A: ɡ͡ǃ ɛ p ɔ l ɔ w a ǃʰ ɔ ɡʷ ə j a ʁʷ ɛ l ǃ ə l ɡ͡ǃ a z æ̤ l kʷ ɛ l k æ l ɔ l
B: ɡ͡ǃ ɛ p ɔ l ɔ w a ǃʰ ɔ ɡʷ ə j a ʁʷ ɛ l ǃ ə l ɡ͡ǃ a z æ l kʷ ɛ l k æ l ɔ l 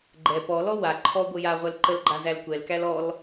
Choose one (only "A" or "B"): B